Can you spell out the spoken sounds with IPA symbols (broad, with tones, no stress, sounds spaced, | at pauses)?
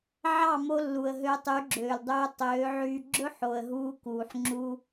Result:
ʕ ɑ˦˨ m o˧ lː u˨ ə̯ ɦ øː˧ tˤ y˨˦ ɡ͡ǁ øː˨ l dˤ øː˧ tˤ øː˨˦ ʕ yː˧ ɡ͡ǁ ɵ˦ ħ o˨ ə̯ ɦ uː˧ k uː˨ ħ ŋ͡ǁ u˧